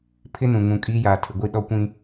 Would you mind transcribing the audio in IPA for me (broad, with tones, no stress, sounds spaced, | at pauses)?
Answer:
pʰ ɪ˦ n ũ˨ ŋ ũ˨ kʼ iː˦ j aː˨ tʰ ɪ˨ ɡʷ i˦˨ ɗ ɔ˦ kʷ ĩ˦